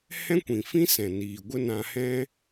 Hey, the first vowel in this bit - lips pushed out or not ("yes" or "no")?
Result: no